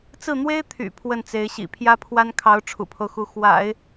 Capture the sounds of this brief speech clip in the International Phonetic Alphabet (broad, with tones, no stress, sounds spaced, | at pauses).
t͡s ɹ̩˥˩ n̪ w e˥ ɪ̯ t̪ʰ y̰˨˩ pʰ w ə˥˩ n t͡s e˧˥ ɪ̯ ɕ ḭ˨˩ pʰ j ä˥ pʰ w a˥ n kʰ ɑ˧˥ ʊ̯ ʈ͡ʂʰ ṵ˨˩ pʰ o˦ ʊ̯ x u˧˥ x w a̰˨˩˦ ɪ̯